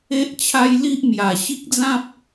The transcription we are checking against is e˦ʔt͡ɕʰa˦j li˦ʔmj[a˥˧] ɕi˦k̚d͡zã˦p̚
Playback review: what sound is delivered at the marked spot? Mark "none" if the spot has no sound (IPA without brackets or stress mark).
a˨˩